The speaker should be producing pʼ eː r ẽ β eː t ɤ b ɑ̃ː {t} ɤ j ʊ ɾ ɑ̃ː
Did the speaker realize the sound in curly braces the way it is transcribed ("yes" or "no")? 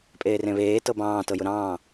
yes